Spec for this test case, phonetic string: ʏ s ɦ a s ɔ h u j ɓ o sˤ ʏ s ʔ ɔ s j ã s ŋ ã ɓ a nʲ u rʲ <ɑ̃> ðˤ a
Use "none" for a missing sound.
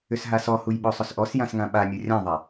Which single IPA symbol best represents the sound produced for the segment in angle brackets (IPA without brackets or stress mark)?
ã